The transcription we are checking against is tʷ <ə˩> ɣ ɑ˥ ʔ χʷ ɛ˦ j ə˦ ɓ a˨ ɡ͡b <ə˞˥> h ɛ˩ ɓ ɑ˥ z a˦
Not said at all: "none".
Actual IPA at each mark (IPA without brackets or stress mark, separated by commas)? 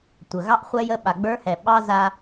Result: ə˩, ə˞˥